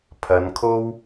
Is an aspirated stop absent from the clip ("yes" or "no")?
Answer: no